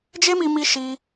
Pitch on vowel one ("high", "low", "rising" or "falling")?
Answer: high